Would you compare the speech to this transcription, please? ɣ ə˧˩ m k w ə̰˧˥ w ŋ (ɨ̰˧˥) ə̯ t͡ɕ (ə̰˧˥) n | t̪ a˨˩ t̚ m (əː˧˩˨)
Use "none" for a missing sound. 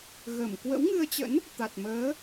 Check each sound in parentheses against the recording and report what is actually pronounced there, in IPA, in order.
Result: ɨ˧, ə̰˧˥, əː˨˦

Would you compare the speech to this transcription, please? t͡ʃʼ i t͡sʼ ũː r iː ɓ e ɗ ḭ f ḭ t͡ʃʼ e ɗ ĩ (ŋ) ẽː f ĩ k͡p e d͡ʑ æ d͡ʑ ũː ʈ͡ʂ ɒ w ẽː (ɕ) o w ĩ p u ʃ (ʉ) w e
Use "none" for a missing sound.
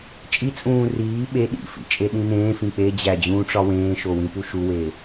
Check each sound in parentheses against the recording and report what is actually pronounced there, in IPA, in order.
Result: n, ʃ, u

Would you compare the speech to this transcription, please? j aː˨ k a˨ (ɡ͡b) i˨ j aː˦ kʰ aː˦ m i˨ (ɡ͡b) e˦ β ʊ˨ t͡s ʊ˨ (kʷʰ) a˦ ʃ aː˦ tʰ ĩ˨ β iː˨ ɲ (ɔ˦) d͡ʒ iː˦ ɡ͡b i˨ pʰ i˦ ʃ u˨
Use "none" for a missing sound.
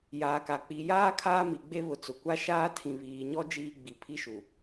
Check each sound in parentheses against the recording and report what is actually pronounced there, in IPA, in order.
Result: k͡p, ɡ͡b, kʷ, ɔ˦

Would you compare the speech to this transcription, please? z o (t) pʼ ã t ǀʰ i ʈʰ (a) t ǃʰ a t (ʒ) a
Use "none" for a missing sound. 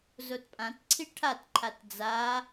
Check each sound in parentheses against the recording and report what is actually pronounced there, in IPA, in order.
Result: t, a, d͡z

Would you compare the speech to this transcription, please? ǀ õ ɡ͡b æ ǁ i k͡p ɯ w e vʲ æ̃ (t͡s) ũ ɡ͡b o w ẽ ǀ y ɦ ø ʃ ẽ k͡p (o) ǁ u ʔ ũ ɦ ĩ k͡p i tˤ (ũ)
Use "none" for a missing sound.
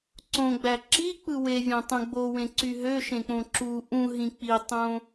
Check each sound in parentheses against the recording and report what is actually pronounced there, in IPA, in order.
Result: tˤ, õ, õ

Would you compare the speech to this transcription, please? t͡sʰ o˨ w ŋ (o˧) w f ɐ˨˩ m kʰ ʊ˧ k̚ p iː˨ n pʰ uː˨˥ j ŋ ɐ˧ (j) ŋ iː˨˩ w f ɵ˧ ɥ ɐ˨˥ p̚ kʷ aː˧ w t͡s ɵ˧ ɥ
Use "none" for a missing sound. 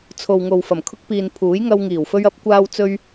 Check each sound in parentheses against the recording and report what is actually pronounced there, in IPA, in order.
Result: o˨, w

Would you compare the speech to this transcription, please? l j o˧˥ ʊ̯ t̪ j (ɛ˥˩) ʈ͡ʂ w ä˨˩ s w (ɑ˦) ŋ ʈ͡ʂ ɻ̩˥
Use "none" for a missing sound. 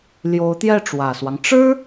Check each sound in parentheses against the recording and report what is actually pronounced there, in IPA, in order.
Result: ɛ˥˩, ɑ˦

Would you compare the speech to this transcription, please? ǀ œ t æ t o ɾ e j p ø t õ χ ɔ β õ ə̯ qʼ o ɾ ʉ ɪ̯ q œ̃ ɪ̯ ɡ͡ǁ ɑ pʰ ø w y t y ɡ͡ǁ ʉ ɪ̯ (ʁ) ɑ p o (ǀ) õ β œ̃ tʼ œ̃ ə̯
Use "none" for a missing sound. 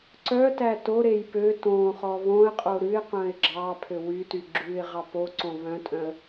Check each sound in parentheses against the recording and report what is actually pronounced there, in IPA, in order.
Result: ʁ, ǀ

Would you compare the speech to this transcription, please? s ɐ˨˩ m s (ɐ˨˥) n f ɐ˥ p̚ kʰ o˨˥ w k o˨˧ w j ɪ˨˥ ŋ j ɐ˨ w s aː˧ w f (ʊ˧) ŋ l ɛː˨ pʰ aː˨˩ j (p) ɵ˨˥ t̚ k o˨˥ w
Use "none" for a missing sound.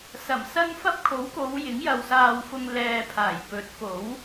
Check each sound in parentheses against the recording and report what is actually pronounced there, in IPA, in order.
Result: ɐ˥, ʊ˧, p

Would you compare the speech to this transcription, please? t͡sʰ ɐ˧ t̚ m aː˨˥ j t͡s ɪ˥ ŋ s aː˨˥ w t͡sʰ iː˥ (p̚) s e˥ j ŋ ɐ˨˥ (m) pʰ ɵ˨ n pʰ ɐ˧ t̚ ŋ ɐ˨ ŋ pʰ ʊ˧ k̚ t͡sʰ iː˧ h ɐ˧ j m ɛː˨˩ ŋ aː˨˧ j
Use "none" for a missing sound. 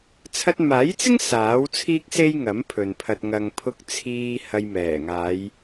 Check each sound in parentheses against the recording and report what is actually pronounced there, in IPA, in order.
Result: k̚, m

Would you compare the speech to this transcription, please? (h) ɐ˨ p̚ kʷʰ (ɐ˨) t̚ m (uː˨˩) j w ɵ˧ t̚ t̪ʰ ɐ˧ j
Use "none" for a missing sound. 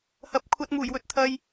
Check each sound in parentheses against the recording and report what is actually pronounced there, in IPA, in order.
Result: h, ɐ˧, uː˨˩

